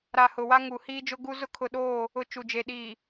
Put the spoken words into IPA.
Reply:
ɾa˨ hʊ˨wa˦ŋu˨ hiː˦d͡ʒʊ˦ɡu˦ zʊ˦kʰʊ˨ɗoː˦˨ | ʊ˨ t͡ʃu˨d͡ʒe˨ ɗiː˨

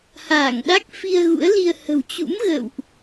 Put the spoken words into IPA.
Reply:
haː˧˩ŋɗa˦˥k̚ fi˧ə̯ɣṵ˧˥ə̯li˧ə̯ hə̤˨˩wt͡ɕṵ˧˥m ɣə̰˧˨wʔ

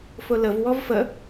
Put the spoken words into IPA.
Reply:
fʊləv wɔvfə

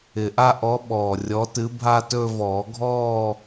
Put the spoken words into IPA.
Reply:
ɪ˨˩ʔa˥˧ʔɔ˨˥ ɓɔː˨˩rʲɔ˨˥ tɨ˨˥bʱa˥˧tɵː˥˧ vɔː˨˩˦ɡʱɔː˥˧

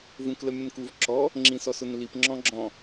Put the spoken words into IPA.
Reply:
vũkləmʲə̃nkuv ǁɔ | ŋ͡ǁĩsɔsʊnlip ŋ͡ǁɔ̃ɡ͡ǁɔ̃

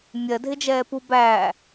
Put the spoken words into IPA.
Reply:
mʲɜdʱɪd͡ʒɛːpu bæ

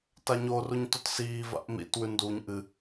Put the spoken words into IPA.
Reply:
taɲoruɲ totsiːva̰ʔ mḭtwʉ nduɲ ʔɨ

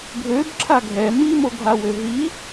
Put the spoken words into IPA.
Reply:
ɡʱøbǁʰa ɡʱɛ mimoɡʱawø ɦi

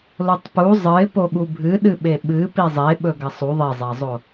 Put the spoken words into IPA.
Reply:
lotˤpu zˤɨɪ̯po ɠubʱɨɗɨɓe ɓɨ pizˤe ɓɵɡɐsˤu ðˤezˤazˤo

